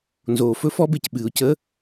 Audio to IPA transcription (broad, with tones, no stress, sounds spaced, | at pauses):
n z oː˩ f ɵ˦˥ f ɔ˦˥ b e˩ c ɓ ɨː˩ ʊ̯ c ə˧˥˧